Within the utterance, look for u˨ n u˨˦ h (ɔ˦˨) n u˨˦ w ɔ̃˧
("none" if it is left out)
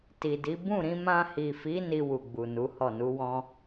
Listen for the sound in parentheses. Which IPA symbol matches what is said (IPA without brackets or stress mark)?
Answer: ɔ˦˨